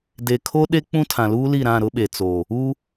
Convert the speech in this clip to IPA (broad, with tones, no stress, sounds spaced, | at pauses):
d e˨ kʰ o˦ ɗ e˦ k͡p ũ˦ tʰ ã˨ l uː˦ l i˦˨ ɾ ã˦˨ ɾ ʊ˦ ɓ e˨ t͡s oː˨ | uː˦